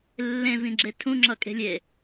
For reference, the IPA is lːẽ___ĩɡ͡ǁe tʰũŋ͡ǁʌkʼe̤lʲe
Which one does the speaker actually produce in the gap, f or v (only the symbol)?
v